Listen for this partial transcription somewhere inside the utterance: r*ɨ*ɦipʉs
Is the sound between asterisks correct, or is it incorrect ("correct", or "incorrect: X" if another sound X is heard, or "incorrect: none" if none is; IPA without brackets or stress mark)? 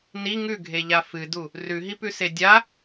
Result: incorrect: ʉ